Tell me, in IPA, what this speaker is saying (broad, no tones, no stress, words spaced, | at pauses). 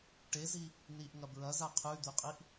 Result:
ʈezi | niʔŋɐ bɹɐza qʰʉd̪ʉqʼiʔ